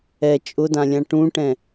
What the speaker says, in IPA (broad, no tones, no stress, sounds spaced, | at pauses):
ɛ t͡ʃʼ ʊ d ã lʲ ã ʈ ũ ʈ ɛ̃